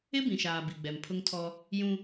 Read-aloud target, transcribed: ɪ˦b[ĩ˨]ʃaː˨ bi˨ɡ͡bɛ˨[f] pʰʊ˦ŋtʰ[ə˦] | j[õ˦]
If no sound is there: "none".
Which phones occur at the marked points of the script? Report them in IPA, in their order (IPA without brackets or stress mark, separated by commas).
ĩ˨, m, ɔ˦, ũ˦